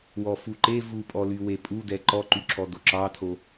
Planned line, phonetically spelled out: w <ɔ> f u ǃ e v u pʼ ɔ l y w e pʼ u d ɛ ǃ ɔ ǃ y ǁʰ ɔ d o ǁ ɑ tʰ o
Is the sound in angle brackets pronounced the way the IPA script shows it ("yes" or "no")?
yes